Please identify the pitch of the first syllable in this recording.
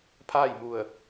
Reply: falling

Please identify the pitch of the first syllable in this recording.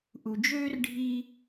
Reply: low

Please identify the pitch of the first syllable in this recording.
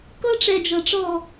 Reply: high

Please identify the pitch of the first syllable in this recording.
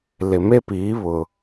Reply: low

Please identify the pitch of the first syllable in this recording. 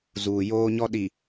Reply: low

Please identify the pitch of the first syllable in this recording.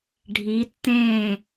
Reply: rising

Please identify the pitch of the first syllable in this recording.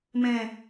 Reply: high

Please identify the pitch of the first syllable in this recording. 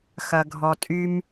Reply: low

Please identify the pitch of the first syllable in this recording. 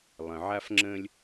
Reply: low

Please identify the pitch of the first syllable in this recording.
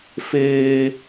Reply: high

